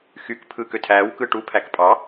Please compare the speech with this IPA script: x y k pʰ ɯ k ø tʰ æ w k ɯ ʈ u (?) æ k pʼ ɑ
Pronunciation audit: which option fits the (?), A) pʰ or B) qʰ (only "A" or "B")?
A